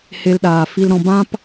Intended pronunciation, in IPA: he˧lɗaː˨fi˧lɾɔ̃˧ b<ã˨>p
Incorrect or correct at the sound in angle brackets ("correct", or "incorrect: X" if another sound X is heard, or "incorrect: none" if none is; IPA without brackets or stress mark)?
incorrect: ã˦